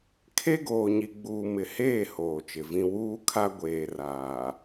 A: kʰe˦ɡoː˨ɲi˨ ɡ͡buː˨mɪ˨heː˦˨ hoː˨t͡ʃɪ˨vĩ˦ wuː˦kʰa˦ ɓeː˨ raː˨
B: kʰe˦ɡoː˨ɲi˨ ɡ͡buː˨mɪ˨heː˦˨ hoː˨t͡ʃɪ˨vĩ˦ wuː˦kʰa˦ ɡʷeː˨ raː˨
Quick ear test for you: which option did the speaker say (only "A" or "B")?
B